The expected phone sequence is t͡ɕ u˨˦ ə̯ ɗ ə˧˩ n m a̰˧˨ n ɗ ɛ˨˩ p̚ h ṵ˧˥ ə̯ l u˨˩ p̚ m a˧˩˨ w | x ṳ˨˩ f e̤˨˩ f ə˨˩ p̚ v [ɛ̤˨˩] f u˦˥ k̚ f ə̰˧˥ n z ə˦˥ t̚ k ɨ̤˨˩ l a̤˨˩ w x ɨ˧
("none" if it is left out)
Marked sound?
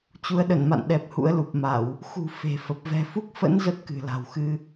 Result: ɛ̤˨˩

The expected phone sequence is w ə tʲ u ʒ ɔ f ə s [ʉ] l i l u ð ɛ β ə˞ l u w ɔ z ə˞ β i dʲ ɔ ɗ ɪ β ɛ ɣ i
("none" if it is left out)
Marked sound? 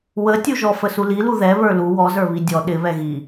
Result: u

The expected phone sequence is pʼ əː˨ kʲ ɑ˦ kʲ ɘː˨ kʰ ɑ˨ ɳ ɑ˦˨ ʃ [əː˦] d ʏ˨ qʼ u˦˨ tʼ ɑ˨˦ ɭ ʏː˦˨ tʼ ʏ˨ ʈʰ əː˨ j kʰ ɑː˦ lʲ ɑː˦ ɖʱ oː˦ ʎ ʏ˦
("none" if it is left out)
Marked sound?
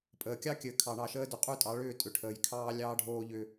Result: əː˦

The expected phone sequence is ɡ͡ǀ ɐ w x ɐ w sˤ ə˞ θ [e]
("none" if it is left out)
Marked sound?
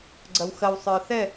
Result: ɛ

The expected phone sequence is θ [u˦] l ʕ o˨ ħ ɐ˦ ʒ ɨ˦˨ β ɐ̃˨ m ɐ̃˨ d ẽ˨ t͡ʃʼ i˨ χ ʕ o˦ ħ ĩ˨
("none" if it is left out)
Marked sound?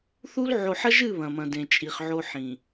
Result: u˦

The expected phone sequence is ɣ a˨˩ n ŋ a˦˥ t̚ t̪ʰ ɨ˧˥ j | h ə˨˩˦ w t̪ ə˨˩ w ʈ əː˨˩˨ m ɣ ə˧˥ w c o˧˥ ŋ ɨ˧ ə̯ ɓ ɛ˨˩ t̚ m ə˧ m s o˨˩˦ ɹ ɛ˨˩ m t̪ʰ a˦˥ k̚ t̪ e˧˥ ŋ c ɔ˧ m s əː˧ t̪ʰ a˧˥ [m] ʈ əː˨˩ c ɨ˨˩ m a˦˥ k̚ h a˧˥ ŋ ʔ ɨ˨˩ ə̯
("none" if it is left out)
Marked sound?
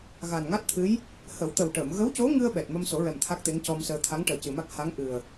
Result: ŋ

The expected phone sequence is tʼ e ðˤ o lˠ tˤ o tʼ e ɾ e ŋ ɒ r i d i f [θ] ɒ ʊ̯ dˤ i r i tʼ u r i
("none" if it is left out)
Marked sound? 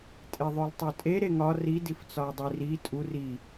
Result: t͡s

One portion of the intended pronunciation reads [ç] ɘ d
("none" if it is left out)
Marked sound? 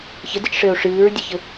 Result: ç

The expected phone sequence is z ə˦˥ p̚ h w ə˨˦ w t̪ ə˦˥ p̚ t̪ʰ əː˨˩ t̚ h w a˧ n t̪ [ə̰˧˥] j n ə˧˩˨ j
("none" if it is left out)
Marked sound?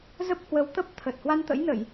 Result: ə̰˧˥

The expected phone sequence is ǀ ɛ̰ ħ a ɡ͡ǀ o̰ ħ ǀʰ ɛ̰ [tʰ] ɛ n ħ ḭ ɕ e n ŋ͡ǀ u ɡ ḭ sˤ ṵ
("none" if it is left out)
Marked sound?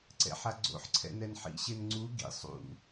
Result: n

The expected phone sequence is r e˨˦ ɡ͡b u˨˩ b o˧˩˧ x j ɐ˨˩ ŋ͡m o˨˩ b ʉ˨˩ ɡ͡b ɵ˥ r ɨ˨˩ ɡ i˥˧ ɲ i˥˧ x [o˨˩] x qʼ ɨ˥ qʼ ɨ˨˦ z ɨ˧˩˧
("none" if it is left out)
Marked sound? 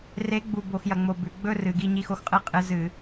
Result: o˥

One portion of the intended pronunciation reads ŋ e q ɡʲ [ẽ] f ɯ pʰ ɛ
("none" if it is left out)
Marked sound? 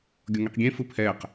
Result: ẽ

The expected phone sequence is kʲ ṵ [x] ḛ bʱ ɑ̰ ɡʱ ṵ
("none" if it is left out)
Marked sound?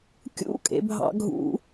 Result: kʼ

